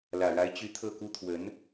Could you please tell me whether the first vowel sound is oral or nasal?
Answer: oral